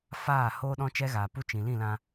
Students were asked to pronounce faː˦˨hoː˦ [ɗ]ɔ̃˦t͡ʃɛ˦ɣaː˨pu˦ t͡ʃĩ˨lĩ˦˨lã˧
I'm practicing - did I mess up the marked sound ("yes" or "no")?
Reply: no